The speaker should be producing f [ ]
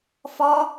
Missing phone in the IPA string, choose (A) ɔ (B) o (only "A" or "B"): A